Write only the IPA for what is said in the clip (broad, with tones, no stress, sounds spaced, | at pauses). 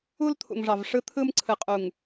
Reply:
u˦ l t̪ʰ ṵ˨ ŋ ʐ ɑ˨ v ʂ ɯ˦ t̪ʰ ɯ˦ m ǀʰ ɯ˨ qʼ u˨ ŋ